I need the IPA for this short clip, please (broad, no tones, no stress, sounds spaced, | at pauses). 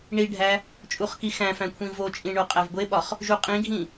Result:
ɳ i ɖʱ æ | t͡ʃʼ u χ k i x æ̃ f æ̃ kʷʰ ĩ v o t͡ʃʼ ĩ ɳ o qʼ æ v ɡʷ e ɓ ɒ χ | ʒ u qʼ ĩ ɡʱ ĩ